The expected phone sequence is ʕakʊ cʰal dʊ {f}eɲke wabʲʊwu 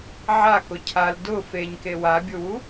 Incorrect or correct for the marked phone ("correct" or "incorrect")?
correct